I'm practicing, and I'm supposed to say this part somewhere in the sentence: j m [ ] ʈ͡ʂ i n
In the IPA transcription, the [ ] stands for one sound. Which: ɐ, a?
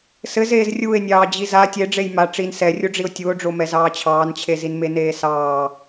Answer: a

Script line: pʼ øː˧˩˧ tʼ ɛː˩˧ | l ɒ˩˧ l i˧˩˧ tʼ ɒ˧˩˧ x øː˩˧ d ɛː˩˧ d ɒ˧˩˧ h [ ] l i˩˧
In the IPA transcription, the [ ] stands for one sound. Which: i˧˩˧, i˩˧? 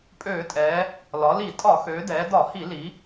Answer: i˧˩˧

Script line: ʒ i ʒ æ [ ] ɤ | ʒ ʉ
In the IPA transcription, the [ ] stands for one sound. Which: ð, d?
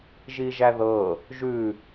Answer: ð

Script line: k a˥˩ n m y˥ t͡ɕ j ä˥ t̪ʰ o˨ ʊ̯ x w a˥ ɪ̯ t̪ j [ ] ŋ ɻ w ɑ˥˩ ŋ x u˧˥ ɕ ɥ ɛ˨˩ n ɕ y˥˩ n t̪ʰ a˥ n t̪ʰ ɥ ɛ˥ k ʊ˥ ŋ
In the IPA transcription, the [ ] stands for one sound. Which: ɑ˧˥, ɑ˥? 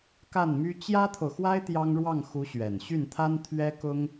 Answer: ɑ˥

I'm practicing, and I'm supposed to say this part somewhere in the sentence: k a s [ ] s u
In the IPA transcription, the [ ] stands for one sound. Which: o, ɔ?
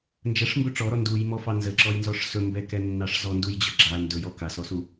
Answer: ɔ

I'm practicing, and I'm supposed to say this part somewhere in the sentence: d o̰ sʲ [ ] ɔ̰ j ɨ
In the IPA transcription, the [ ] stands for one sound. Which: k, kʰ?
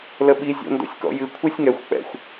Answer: k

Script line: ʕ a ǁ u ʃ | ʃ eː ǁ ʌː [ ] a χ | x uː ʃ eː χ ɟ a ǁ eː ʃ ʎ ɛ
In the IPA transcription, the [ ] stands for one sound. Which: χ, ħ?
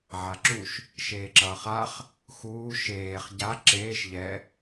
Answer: χ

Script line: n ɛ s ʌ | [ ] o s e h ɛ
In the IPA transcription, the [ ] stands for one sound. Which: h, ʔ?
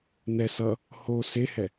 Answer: h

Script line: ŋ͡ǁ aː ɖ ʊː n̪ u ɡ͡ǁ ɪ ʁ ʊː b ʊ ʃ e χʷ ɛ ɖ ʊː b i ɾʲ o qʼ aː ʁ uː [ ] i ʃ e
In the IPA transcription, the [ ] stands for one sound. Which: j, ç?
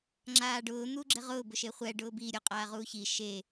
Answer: ç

